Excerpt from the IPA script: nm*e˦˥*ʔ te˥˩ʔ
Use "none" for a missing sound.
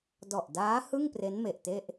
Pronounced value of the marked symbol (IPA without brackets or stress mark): e˨˩